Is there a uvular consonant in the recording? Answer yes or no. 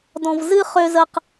yes